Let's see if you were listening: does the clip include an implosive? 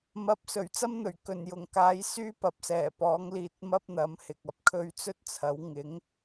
no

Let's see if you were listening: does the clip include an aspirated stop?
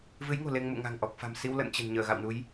no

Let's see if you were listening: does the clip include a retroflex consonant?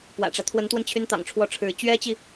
yes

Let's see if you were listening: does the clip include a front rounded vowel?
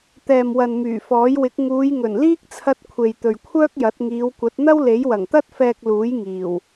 yes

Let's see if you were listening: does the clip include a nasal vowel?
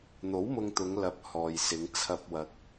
no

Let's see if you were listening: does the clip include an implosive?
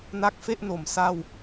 no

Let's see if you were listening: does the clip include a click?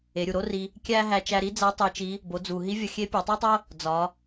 no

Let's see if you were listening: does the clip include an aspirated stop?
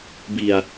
no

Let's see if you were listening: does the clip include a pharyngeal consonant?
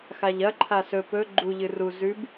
no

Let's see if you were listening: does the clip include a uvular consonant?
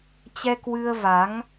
no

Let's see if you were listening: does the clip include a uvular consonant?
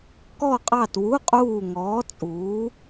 yes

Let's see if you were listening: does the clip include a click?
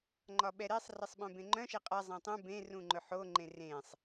yes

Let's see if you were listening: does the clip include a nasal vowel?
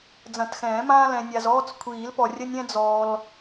yes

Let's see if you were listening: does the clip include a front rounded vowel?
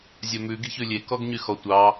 yes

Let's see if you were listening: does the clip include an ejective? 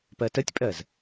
yes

